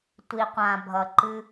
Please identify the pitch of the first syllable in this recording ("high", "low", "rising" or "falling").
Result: low